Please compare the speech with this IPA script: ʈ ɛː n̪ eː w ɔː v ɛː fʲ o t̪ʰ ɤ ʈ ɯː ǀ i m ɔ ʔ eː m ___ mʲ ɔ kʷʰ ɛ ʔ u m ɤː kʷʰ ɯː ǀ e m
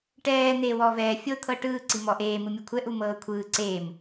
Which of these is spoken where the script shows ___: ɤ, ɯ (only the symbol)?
ɯ